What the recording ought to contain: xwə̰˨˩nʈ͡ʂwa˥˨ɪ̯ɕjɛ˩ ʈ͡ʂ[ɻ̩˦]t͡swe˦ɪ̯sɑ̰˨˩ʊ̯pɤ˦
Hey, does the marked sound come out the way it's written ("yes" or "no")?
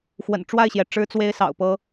yes